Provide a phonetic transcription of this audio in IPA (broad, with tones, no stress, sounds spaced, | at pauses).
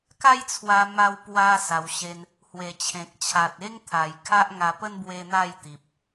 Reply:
k a˦ j t͡sʰ w a˧ m a˧ w p w a˧ s a˧ w ɕ e˦ n | h w e˨˩ t͡ɕʰ ẽ˨ k̚ t͡ɕʰ a˨ t̚ e˦ ŋ t̪ʰ a˨˩ j kʰ a˦ ʔ ŋ a˧ p ə˦ n b w e˦ n̪ a˥˧ j t̪ i˨ p̚